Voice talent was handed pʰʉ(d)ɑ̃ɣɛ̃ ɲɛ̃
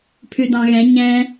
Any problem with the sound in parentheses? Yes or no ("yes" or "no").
no